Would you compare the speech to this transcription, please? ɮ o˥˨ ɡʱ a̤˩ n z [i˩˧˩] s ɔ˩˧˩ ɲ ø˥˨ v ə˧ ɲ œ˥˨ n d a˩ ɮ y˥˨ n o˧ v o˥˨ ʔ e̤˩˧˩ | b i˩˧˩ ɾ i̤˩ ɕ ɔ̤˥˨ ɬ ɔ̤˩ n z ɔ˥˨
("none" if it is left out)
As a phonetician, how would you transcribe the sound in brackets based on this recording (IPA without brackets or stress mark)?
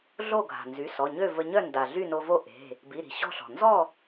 y˩˧˩